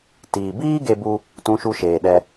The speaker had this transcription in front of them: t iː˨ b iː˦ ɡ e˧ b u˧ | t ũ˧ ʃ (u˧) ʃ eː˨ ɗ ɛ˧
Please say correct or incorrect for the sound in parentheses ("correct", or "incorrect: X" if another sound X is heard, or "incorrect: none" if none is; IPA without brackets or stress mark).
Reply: correct